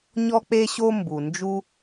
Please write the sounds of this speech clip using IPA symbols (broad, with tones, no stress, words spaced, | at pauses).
ɲɔ˥k͡pe˥ɕo˥ mbu˩ nd͡ʒu˥